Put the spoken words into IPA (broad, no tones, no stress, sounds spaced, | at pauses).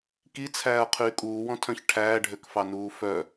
k i t͡sʰ æː ɐ̯ qʰ yː kʼ uː w ɔ̃ tʰ œ̃ ç ʈʰ æː ɖʱ ø k f ɑ n uː f œ